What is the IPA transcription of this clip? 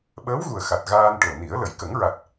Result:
ɓ əː˧˥ w ɣ u˨˩ ə̯ x a˨˩ t̚ ɣ aː˧ n ʈ o˨˩ n i˨˩˦ ə̯ l ə˨˩˨ j k ə˨˩˦ ŋ ɹ a˨˩ t̚

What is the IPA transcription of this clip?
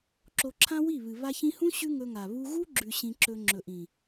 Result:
ǁ o˧ ǁʰ ã˦ w i˦˨ β ɨ˨ β a˧ ç ĩ˧ h ũ˦ ɕ ʉ˦ ŋ ɵ˧ ŋ a˨ β u˧ ɣ u˦ ɡ͡ǁ ʉ˨ ɕ ĩ˧ ǁ ɵ˧ ŋ͡ǁ ɵ˨ ʔ ĩ˨

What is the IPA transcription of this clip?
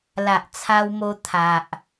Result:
l a˨ ʔ t͡sʰ a˧ w m o˧ t̪ʰ a˨ ʔ

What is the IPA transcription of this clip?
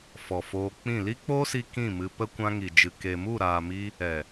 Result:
f ɔ˨ f oː˧ k͡p ĩ˦˨ l i˦ k͡p oː˦ s i˧ k ĩ˦˨ m ɨ˧ p ə˦ kʷ ã˧ ŋ i˨ d͡ʒ ɨ˨ k e˨ m u˦˨ ɾ aː˨ m i˧ | ɛ˨

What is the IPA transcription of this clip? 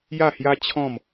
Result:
j a˥˧ h j a˦ t͡ɕʰ ɔ̃˥˧ m

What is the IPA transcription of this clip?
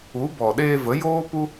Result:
u˨˦ b ɔ˨ ɗ eː˧ v ə˨˦ j oː˦ p u˦

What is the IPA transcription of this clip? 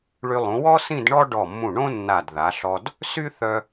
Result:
ɭ y˧ lˠ ũ˩˧ w ɔ˥ s ĩ˥˧ d ɳ ɔ˥ ɖ ɔ˧˩ mː ũ˧˩ ɳ õ˥ nː a˧˩ d ð a˩˧ ɬ ɔ˧ d | s y˥ θ œ˧

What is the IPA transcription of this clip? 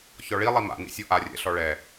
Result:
ç ɔ ɭ i lˠ i m a̰ n ḭ sʲ ɔ ʔ a rʲ ɛ̰ ɬ ɔ ɭ ɛ

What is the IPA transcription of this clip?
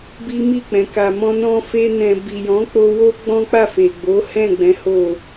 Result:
b i˦ m i˦˨ k͡p ɛ̃˨ k a˨ m ɔ̃˧ n ɔ̃˧ f e˧ n ɛ̃˧ b i˨ j ɔ̃˨˦ k͡p o˧ w o˦ ɡ͡b ɔ̃˦ k͡p a˦˨ f e˨ ɡ͡b o˨˦ h ɛ̃˦˨ ɡ͡b ɛ̃˨˦ h o˦˨

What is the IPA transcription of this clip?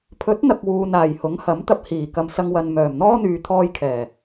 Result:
pʰ ɵ˨˥ t̚ n̪ ɐ˨ k̚ w uː˨ n aː˨˩ j h ʊ˨˥ ŋ h ɐ˨˥ m t̪ ɐ˧ p̚ h iː˨˩ k ɐ˨ m s ɐ˧ ŋ w ɐ˨ n m œː˨˩ m n̪ ɔː˥ n̪ yː˨ t̪ʰ ɔː˧ j kʰ ɛː˨˩

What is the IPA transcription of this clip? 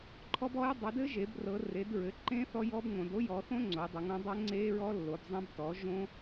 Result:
ǃʰ ɔ˦˥ b ɔ˦˥ j dˤ œ˩˧ d ɘ˦˥ ʒ e˩˧ b r ɤ˩˧ r e˩˧ d ɹ ɘ˩˧ ǃ ẽ˦˥ θ ɔ˦˥ j ɔ˦˥ b ŋ õ˩˧ d o˦˥ j ɔ˩˧ θ õ˦˥ ŋ͡ǀ o˩˧ j dˤ e˩˧ ŋ õ˩˧ dˤ ə˦˥ ŋ͡ǀ e˦˥ ɹ ɔ˦˥ lː o˩˧ b zˤ ẽ˦˥ b t ɔ˩˧ ʒ õ˦˥

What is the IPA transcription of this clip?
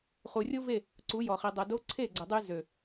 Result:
χ u˨ rʲ o˦ v e˦˨ | ǀ u˨˦ j ɔ˨ χ i˨ dˤ œ˨ d o˧ ǀʰ e˦˨ ɡ͡ǀ ə˨ dˤ y˧ z ø˨

